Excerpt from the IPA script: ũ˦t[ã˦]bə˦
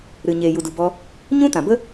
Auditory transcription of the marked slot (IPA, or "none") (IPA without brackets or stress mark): ã˨